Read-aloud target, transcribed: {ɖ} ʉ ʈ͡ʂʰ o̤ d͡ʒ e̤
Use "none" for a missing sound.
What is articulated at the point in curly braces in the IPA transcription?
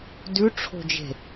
d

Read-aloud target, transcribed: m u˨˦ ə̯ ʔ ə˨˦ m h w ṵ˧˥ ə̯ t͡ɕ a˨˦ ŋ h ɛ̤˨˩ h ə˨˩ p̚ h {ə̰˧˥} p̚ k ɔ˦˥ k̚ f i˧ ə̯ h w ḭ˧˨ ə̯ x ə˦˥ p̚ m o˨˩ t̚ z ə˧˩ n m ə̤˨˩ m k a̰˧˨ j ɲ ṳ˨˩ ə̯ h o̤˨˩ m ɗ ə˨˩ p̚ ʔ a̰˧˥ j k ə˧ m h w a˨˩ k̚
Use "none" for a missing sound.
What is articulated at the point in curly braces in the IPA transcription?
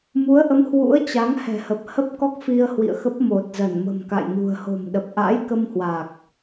ə˦˥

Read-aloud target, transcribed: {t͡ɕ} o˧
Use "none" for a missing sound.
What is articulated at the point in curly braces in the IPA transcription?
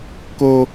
k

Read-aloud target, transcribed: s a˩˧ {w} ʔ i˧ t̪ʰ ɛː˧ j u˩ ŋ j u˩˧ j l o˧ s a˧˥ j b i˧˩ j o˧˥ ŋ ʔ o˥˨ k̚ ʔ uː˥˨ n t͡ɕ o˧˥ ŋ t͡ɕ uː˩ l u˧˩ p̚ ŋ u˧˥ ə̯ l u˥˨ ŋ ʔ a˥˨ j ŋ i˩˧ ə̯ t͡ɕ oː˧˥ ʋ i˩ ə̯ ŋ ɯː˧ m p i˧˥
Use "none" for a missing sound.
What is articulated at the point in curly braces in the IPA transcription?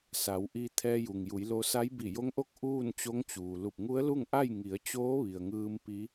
w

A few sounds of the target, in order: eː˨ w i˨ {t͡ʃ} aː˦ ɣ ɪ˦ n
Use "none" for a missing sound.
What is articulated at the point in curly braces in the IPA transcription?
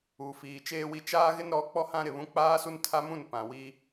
t͡ʃ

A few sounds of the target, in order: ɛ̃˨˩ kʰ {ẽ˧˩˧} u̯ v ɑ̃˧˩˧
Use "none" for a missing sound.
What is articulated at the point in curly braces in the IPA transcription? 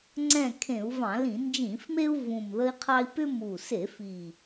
ẽ˧˩˧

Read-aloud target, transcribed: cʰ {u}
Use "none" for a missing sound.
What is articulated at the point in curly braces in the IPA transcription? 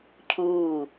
uː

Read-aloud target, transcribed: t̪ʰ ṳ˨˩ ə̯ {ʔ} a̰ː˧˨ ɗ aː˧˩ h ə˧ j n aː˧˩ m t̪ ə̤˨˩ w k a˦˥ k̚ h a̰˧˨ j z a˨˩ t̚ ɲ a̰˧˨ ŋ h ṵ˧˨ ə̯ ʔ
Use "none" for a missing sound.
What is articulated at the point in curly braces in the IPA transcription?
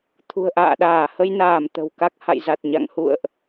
ʔ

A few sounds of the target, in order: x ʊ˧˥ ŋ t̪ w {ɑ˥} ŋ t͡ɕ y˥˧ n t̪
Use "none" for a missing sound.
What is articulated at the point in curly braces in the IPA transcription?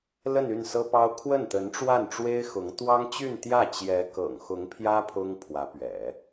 ɑ˥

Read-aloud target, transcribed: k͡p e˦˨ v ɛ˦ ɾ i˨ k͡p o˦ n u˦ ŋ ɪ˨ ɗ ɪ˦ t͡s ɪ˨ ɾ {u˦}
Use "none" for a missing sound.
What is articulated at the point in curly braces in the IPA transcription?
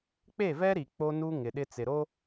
o˦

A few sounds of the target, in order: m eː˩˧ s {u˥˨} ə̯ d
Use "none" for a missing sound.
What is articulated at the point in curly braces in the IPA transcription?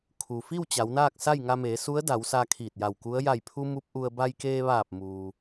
u˧˥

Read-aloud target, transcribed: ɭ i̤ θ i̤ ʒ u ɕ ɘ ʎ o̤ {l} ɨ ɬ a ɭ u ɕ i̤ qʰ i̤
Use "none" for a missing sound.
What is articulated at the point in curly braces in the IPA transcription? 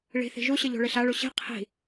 ɭ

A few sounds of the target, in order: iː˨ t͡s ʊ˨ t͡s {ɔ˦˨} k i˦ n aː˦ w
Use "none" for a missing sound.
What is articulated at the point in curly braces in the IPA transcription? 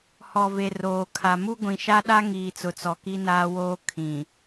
ɔ˨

